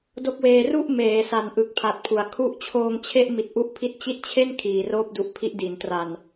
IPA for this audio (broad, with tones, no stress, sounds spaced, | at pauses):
d o˥˩ k̚ w eː˧ r u˥˩ ʔ m eː˩˦ s a˨˩ n ʔ ɯ˨˩ k̚ pʰ a˨˩ t̚ pʰ u˨˩ a̯ kʰ u˦˥ ʔ t͡ɕʰ oː˧ ŋ t͡ɕʰ e˥˩ ʔ m i˨˩ t̚ ʔ u˦˥ ʔ pʰ i˦˥ t̚ t͡ɕ i˦˥ t̚ t͡ɕʰ e˥˩ n kʰ iː˨˩ r oː˥˩ p̚ d u˦˥ ʔ pʰ i˦˥ ʔ d i˩˦ n t r a˨˩ n